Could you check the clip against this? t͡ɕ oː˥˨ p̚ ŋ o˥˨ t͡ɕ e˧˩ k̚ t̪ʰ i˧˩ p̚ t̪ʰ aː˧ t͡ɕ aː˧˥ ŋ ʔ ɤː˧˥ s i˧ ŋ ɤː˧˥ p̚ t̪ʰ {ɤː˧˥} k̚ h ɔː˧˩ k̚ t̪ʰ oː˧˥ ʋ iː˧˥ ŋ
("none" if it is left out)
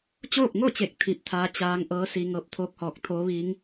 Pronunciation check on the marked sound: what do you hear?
oː˧˥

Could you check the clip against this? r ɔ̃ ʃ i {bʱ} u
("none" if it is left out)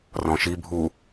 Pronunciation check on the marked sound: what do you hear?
bʱ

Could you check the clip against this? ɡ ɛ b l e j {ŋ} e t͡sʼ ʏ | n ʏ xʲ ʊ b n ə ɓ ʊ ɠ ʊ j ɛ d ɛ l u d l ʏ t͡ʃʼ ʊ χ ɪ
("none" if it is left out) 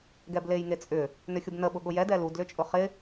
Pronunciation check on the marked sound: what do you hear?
ŋ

